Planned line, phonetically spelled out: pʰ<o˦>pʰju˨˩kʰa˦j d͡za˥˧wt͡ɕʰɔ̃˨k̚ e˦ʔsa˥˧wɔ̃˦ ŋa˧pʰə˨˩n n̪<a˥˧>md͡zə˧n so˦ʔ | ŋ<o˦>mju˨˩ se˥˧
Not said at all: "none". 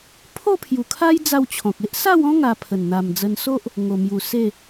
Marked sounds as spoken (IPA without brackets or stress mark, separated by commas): o˥˧, a˨˩, o˨˩